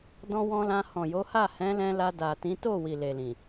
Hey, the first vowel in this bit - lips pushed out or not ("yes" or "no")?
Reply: yes